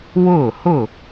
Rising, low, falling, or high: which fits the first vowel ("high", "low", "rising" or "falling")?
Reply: falling